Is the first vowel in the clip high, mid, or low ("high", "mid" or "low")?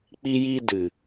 high